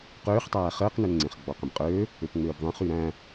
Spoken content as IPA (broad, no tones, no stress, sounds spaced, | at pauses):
q øː χ tˤ æː χ əː q n ø n ŋ͡ǀ ẽ χ ɡ͡b ɔ q ə̃ b qʼ øː | ø p ŋ͡m øː b ðˤ ẽ χ y ɾ æ̃